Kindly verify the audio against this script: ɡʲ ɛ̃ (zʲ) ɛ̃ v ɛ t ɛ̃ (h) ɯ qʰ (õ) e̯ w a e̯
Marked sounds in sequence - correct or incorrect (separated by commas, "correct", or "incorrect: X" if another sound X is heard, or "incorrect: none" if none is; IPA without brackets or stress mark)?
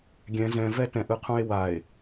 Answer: incorrect: z, incorrect: ʔ, incorrect: ũ